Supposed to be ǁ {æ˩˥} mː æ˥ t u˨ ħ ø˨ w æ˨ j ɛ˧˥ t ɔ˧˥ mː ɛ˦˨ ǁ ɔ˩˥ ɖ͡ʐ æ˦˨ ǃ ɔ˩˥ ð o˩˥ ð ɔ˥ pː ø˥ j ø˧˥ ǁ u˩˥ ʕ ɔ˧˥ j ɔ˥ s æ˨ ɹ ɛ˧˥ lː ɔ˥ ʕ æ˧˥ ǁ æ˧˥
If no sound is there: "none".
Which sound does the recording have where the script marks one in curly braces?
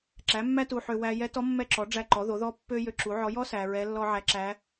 æ˩˥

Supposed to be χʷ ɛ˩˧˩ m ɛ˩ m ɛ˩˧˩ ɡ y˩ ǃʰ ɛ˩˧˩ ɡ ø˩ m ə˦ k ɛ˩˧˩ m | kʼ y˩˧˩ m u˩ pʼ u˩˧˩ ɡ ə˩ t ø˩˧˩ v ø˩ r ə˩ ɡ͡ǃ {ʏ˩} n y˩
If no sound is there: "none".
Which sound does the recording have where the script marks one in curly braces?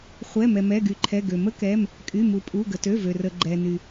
ɛ˩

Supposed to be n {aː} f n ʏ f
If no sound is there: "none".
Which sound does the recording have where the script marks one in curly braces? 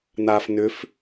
aː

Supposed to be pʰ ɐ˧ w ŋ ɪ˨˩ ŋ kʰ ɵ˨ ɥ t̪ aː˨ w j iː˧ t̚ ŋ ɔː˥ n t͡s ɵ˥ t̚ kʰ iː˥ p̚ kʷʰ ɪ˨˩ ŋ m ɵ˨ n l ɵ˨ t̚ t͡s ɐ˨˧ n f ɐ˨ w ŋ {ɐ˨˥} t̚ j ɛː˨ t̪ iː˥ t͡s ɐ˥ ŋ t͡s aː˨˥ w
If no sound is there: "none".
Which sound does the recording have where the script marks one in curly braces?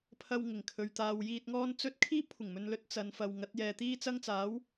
ɐ˨˥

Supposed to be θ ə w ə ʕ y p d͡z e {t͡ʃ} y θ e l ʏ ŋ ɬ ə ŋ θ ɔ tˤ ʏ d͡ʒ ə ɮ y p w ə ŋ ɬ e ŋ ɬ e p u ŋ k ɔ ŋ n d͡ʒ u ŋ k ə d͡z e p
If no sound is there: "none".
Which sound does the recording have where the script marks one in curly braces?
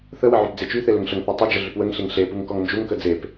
t͡ʃ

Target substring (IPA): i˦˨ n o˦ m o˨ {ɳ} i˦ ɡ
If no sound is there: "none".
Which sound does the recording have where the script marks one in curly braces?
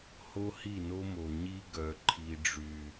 ɲ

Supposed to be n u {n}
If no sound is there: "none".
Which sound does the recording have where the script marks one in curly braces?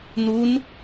n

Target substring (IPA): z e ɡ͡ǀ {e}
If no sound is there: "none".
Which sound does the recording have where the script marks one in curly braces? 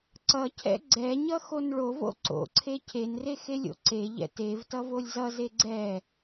ɛ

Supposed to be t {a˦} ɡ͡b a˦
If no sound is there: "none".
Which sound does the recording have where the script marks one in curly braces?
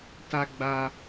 a˦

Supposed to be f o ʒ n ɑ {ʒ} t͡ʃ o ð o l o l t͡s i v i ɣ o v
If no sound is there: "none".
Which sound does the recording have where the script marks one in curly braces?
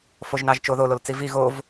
ʒ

